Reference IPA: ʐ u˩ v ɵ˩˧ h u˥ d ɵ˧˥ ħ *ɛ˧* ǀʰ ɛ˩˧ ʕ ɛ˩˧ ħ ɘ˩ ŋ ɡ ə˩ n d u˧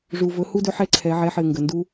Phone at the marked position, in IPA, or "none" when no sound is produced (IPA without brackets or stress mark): ɛ˧˥